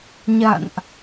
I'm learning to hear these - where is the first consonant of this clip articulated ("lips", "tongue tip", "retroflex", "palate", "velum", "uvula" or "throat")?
palate